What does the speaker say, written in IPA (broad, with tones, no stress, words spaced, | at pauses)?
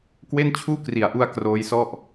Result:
kwe˥˩nt͡ɕʰuː˥˩kri˨˩a̯ʔu˧a̯ kroː˦˥jsɔ˥˩ʔ